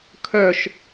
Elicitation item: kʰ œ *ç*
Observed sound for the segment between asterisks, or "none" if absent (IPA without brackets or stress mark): ʃ